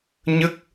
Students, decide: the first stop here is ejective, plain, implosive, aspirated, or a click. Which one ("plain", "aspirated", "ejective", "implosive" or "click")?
plain